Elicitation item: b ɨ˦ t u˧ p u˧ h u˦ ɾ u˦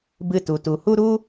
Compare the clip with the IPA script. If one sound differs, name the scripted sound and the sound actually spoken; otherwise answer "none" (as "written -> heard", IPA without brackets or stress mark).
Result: p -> t